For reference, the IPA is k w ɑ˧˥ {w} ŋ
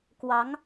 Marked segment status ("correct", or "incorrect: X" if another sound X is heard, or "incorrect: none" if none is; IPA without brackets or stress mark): incorrect: none